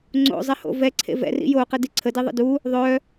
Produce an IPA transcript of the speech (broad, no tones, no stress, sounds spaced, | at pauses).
ŋ͡ǀ o̰ zˤ ɛ h o̰ v ɛ ǀʰ ḛ v ɛ̰ r ḭ j o q ə d i ǀʰ ə d i ðˤ ə̰ d u | ðˤ œ